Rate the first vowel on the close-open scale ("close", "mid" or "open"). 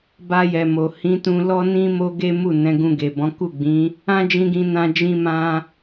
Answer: open